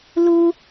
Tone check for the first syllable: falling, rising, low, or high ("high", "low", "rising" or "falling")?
high